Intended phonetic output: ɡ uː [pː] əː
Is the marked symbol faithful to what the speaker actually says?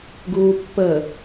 yes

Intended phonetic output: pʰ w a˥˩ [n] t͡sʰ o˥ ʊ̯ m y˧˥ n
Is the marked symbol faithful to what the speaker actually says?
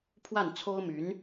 yes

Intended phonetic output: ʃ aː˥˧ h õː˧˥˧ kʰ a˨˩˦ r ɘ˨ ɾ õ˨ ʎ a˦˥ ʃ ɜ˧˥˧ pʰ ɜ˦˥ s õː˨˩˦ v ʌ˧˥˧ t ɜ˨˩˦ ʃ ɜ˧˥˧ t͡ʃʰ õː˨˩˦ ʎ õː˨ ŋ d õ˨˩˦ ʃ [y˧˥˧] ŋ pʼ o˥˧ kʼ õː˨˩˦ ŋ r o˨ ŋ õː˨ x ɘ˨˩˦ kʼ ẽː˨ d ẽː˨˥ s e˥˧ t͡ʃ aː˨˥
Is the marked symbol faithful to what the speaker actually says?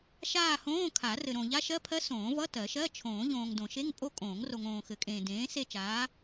no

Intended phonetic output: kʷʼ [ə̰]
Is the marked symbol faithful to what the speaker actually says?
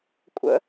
yes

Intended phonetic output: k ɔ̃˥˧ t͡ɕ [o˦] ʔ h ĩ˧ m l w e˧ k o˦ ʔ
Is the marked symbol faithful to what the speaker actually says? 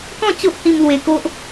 yes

